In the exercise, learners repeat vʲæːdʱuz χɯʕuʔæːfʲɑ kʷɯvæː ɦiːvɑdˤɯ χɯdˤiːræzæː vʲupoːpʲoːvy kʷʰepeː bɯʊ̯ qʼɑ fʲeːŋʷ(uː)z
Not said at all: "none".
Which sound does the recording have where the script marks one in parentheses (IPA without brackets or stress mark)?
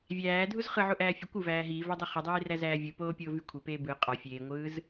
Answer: ɯː